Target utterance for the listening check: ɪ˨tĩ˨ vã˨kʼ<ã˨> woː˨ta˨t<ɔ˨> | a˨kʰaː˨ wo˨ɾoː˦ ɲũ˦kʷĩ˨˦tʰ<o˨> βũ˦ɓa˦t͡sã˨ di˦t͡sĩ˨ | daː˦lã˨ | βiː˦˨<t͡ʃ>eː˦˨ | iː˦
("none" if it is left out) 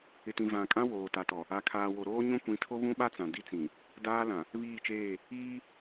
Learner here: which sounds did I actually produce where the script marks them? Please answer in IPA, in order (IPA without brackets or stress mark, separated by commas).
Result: ã˦, ɔ˨, o˦, t͡ʃ